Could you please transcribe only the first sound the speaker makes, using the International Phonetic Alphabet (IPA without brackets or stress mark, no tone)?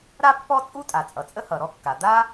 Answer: ɾ